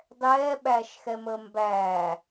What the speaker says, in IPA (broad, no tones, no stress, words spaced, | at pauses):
dˤɛːɓæːʃ xɛməːmbæː